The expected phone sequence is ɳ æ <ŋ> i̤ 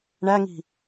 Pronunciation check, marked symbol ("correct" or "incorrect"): correct